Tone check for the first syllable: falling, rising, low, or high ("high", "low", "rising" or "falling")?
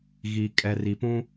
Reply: low